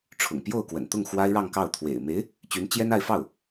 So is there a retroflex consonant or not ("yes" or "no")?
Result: yes